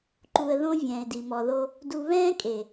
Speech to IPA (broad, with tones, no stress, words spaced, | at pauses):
ǃu˨ə̯ðõ˦ vʲɛ̃ː˨ɪ̯di˨mɔ˨ðo˦ | du˦ βɛ̃ː˦kʼe˨